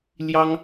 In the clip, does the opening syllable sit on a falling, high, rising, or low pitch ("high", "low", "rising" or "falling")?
high